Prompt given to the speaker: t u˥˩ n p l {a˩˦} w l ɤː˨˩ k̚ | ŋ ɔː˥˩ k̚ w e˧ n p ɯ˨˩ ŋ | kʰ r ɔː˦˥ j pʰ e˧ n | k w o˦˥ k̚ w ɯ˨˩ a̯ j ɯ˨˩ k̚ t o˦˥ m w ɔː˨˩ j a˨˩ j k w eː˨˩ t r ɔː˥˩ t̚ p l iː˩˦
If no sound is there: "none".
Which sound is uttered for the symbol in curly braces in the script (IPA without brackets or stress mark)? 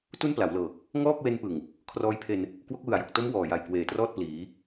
a˩˦